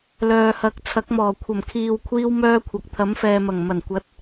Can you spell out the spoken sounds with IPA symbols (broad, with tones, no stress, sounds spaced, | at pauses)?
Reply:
l œː˨ h ɐ˨˥ k̚ t͡sʰ ɐ˨˥ k̚ m ɔː˨˩ kʷʰ ɐ˨˩ m kʰ iː˨ w kʷʰ iː˥ w m œː˥ kʷʰ ɐ˨ k̚ t̪ʰ ɐ˨˥ m f ɛː˨ m ɐ˨˩ ŋ m ɐ˨˩ n kʷ ɐ˨˥ t̚